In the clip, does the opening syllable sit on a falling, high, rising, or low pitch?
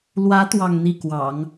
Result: rising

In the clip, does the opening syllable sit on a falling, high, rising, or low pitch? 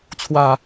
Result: low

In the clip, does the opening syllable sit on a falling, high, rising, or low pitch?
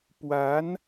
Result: rising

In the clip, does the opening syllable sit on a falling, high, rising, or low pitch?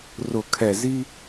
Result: low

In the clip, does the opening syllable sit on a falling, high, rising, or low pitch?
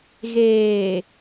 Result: low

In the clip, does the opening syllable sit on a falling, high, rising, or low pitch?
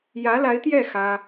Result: rising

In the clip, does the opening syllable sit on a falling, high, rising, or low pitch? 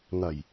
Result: low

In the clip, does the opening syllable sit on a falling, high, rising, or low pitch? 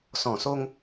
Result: low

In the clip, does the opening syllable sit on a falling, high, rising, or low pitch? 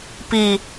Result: low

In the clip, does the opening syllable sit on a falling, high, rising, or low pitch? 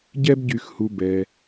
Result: high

